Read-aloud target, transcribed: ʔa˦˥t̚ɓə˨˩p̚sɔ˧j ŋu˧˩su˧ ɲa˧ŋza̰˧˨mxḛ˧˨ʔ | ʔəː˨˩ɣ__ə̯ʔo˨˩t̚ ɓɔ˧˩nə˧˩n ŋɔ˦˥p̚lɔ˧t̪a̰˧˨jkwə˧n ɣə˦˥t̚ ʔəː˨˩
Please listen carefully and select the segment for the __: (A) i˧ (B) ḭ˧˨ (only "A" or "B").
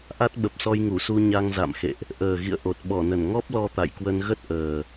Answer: B